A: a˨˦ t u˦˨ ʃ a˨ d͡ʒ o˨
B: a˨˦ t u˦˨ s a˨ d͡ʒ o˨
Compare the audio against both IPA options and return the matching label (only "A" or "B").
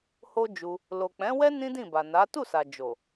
B